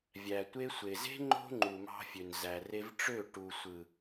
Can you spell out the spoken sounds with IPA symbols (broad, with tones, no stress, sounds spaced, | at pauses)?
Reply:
vʲ æ˨ tʷ e˧ sʷ e˨ z e̤˦ ŋ͡ǃ o̤˦ ŋ͡ǃ u˨ m ɑ̤˧ fʲ ø˨ n z æ˨ r e˧ v ʈ͡ʂ ø˦˨ ʈ u˨ sʷ ɯ˨